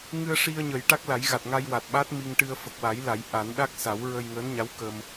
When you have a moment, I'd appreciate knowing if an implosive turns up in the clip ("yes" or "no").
yes